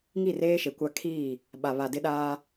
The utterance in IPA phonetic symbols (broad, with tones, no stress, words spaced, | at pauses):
ŋi˦˨reː˦ʃe˨kʷa˦ kʰiː˦˨ | ɓa˨ βa˨dɪ˦ ɗaː˦